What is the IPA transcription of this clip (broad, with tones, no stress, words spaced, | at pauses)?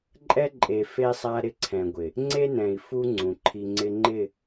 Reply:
ǃʼɛ˦ ǃʼe˨fe˦sˤa˦ ɾɪ˦ǀʰɛ̃˨ɡʷɪ˨ | ŋ͡ǀe˦nɛ̃˨i̯fu˦ ŋ͡ǀũ˨ǃʰi˦ ŋ͡ǀɪ˦ŋ͡ǃɪ˦˨